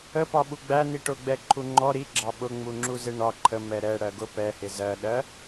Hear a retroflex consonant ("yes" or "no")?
yes